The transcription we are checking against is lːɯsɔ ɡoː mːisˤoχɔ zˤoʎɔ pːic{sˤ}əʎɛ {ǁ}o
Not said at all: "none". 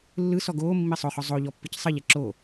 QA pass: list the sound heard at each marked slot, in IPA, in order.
sˤ, ǁ

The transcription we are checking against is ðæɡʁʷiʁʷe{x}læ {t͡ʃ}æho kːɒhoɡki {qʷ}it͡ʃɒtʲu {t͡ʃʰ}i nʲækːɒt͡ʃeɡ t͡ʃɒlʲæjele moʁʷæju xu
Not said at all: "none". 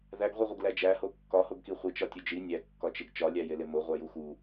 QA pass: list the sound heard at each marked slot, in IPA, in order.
ɡ, d͡ʒ, χʷ, d͡ʒ

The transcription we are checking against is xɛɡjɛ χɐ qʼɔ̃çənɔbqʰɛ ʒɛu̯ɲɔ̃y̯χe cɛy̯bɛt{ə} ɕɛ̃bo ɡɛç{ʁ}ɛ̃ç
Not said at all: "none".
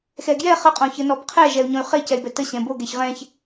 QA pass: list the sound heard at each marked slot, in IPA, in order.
ə, ʁ

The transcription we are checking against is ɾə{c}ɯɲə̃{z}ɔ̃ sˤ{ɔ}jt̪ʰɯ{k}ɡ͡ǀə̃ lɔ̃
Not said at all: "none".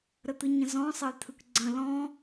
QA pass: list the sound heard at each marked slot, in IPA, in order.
t̪, z, ə, k

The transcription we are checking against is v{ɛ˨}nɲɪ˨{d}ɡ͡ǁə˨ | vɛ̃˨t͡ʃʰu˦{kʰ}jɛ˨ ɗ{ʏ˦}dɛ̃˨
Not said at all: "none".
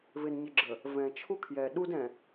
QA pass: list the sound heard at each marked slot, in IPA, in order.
ɪ˨, none, kʰ, u˦

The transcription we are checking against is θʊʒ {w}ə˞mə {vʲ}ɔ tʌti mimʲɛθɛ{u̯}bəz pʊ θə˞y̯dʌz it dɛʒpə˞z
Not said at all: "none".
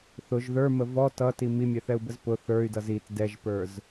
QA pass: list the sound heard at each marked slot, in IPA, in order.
ð, v, u̯

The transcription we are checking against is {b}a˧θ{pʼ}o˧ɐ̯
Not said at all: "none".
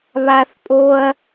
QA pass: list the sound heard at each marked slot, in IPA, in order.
β, pʼ

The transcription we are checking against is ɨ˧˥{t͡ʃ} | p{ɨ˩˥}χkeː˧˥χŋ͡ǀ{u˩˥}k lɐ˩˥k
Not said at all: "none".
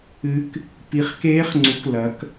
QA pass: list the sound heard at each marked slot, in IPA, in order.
k, i˩˥, u˩˥

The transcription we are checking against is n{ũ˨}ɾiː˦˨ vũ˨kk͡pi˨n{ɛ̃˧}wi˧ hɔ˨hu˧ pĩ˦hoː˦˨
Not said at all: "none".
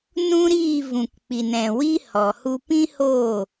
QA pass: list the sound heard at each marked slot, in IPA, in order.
ũ˦, ɛ̃˨

